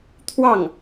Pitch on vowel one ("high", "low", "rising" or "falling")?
falling